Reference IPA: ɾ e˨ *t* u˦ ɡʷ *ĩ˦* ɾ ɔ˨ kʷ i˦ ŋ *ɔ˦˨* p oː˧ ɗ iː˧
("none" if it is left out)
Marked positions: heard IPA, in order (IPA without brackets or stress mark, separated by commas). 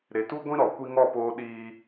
t, ĩ˦, ɔ˦˨